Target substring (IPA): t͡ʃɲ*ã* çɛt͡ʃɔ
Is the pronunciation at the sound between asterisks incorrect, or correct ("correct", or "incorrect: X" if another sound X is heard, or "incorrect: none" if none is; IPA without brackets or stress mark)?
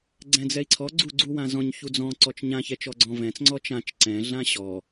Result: correct